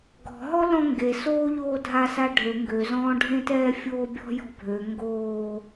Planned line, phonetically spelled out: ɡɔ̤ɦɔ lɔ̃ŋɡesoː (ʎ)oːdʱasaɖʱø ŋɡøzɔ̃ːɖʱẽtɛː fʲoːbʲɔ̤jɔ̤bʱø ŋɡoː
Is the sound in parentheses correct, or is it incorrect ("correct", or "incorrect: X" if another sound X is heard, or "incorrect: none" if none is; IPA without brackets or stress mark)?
correct